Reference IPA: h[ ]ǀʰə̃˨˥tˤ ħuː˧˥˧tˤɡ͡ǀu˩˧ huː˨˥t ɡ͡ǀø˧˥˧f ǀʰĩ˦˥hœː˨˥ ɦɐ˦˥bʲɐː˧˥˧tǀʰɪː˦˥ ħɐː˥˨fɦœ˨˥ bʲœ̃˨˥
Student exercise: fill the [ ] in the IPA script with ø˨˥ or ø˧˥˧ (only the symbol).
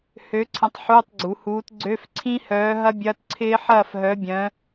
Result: ø˨˥